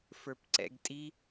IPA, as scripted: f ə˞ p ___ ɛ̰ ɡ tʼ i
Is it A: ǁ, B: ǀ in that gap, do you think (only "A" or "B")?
B